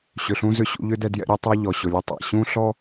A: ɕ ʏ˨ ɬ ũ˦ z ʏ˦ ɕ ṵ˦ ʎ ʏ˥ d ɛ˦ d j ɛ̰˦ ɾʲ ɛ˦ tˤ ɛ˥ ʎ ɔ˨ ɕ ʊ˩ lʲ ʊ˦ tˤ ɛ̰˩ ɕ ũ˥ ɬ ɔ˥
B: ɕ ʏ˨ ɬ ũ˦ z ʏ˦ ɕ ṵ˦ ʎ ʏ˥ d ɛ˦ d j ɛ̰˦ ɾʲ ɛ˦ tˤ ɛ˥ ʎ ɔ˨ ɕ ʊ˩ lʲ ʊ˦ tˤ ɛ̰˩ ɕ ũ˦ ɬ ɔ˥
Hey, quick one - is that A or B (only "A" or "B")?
A